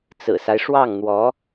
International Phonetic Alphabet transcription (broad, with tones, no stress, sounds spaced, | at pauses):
t͡s ɹ̩˨˩ s a˦ ɪ̯ ʂ w ɑ˥˩ ŋ n̪ w ɔ˧˥